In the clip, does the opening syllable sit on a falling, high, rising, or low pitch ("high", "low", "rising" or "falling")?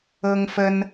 high